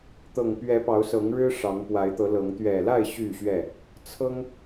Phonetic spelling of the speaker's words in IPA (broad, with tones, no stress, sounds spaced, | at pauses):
t̪ ɤ˨˩ ŋ p ɥ ɛ˨˦ p ɑ˨˦ ʊ̯ s ɤ˨˦ ŋ ɻ ɻ̩˦ ʂ ɑ˨˦ ŋ p w a˨˦ ɪ̯ t̪ ɤ˨˦ l ɤ˨˦ ŋ t̪ ɥ ɛ˨˩ l a˥˨ ɪ̯ ɕ y˥˨ ɕ ɥ ɛ˥˨ | t͡sʰ ɤ˦ ŋ